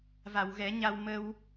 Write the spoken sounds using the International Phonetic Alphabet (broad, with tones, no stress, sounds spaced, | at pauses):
v a˨˩˨ w ɣ ɛ˨˩˦ ɲ a˧ w m ə˧ w